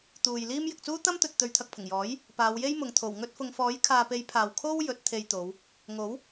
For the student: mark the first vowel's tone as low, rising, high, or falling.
low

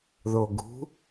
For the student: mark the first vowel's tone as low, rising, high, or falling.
low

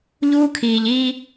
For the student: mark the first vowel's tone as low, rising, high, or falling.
high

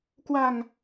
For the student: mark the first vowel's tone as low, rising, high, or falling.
low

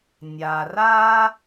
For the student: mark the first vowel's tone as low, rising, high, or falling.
low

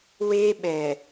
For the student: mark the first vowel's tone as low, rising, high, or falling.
high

